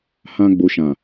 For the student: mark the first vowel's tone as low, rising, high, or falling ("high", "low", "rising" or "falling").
high